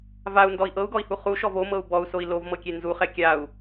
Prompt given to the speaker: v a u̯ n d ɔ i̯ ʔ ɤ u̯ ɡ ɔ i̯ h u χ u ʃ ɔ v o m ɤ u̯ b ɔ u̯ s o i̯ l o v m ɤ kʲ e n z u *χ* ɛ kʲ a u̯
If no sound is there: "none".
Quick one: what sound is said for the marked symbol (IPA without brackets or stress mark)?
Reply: χ